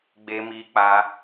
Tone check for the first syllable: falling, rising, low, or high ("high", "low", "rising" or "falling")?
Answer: high